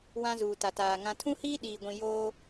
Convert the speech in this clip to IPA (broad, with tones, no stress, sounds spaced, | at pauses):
w ã˦ z uː˨ t a˨ t aː˨ ŋ ã˨ tʰ ũ˦ h iː˦ ɗ iː˨ ɡʷ ĩ˨ j oː˦